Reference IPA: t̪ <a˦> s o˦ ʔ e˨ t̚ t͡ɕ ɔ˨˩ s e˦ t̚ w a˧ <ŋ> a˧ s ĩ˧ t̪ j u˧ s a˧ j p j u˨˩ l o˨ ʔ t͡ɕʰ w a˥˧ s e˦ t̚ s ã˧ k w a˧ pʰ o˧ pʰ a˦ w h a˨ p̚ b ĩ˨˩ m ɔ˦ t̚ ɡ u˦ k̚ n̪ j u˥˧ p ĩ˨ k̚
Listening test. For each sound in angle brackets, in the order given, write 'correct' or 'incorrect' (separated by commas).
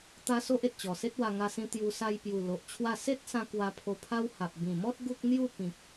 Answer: correct, correct